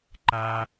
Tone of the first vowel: high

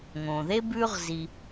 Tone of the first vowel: low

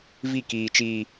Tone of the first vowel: falling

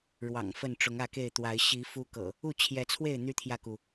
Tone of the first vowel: low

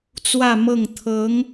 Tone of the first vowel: falling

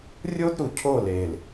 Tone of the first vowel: high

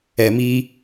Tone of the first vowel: low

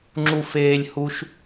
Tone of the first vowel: high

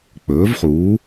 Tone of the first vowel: rising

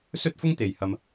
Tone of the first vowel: high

